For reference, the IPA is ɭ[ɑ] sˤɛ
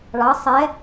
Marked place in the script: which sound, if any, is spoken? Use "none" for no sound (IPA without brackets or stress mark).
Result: ɑ